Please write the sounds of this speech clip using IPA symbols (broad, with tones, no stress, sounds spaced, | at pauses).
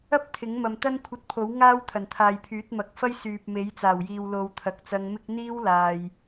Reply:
ɐ˥ p̚ t̪ʰ ɪ˨˥ ŋ m ɐ˨ m t̪ ɐ˥ n kʷʰ ɐ˧ t̚ pʰ o˨˥ w ŋ aː˥ w t̪ʰ ɐ˨˩ n t̪ʰ aː˨ j pʰ yː˨˥ t̚ m ɐ˨˥ k̚ f ɐ˥ j s yː˨ p̚ m e˨˥ j t͡s aː˨˩ w j iː˨ w l o˨ w t̪ʰ ɐ˨˥ k̚ t͡s ɐ˧ ŋ m ɪ˥ k̚ n̪ iː˥ w l aː˨ j